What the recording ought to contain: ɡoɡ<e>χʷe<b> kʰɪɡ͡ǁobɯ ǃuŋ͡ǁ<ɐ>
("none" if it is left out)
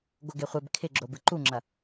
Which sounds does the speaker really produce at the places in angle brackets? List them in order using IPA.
e, b, ɐ

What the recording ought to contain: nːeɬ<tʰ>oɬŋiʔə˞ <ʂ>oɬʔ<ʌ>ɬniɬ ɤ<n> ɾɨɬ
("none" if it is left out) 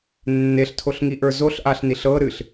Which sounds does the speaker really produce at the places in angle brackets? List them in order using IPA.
tʰ, z, a, none

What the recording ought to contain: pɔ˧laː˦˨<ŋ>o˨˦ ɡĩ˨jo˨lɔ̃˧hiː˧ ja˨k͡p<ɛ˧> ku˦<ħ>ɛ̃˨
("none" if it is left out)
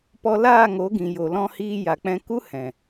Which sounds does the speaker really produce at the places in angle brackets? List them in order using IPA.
ŋ, ɛ̃˧, h

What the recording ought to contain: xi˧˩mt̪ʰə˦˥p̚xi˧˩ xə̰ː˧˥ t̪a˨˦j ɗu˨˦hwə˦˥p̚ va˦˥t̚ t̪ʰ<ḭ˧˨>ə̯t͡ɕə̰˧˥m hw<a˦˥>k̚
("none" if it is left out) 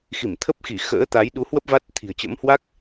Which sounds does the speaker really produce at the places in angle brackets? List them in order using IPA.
i̤˨˩, a˦˥

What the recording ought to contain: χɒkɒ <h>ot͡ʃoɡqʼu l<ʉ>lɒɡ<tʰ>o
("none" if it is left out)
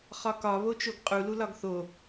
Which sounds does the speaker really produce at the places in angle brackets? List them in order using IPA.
β, u, θ

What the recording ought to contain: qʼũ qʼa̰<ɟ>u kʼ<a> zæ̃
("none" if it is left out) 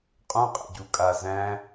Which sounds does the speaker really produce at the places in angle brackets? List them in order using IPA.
ɟ, a

